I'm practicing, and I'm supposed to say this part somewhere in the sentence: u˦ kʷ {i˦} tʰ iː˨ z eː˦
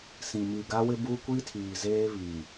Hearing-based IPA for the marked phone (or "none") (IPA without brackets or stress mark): i˦